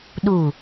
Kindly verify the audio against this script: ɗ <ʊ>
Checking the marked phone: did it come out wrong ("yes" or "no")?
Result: yes